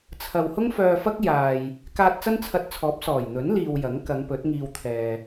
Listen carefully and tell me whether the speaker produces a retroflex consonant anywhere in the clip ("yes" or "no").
no